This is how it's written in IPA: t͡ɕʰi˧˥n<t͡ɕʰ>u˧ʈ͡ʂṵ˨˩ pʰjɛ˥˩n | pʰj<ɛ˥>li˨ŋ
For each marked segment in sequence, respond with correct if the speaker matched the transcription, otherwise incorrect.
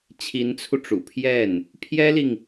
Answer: incorrect: t͡sʰ, correct

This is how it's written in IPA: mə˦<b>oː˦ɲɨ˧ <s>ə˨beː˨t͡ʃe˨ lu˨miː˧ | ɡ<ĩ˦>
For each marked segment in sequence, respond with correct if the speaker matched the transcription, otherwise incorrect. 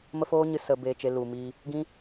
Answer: incorrect: f, correct, correct

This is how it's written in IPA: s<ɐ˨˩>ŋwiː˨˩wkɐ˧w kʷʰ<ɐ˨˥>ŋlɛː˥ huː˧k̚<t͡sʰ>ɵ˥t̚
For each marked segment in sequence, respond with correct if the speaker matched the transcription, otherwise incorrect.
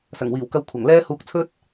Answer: correct, incorrect: ɐ˨˩, correct

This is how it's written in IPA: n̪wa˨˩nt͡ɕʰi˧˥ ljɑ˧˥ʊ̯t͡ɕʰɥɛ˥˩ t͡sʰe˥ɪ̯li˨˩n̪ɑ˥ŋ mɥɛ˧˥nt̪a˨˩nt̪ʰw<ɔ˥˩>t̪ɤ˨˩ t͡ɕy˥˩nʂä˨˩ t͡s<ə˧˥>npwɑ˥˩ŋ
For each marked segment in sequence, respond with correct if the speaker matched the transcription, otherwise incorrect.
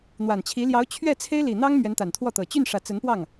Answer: correct, correct

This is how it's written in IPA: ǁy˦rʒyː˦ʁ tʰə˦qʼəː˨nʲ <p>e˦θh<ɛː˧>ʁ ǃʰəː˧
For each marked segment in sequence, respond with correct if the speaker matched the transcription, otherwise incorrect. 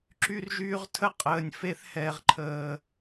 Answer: incorrect: f, correct

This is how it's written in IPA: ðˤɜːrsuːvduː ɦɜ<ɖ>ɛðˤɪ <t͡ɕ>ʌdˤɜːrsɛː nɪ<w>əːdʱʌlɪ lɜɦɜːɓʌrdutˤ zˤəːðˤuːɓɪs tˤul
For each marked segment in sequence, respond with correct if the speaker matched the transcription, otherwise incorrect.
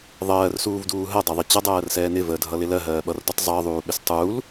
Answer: incorrect: dˤ, correct, incorrect: v

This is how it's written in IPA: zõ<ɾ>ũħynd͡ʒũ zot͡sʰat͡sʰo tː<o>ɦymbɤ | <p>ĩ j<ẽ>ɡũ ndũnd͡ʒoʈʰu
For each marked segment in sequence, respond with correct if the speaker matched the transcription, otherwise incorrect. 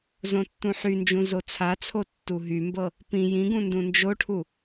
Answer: incorrect: tː, incorrect: u, correct, incorrect: ĩ

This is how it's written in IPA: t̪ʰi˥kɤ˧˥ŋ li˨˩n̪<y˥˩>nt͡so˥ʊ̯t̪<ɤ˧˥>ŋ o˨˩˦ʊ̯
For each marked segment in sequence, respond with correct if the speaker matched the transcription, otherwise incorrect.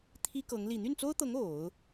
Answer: correct, correct

